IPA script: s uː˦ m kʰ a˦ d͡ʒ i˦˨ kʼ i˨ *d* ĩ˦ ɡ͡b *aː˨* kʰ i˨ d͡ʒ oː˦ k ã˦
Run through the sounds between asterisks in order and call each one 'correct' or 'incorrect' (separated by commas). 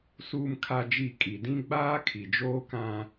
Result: correct, incorrect